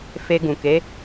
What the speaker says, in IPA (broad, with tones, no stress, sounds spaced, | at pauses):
f e˧ ɡ ũ˨ k e˨˦